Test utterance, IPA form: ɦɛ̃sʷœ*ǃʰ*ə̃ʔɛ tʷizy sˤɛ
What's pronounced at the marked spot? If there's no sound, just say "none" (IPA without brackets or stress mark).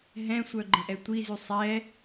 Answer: ɡ͡ǃ